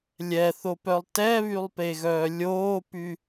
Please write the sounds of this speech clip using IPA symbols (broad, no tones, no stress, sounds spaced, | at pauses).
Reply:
lʲ ɛ θ o p œ lˠ t ɛ β y lˠ p e ɣ œː lʲ oː p y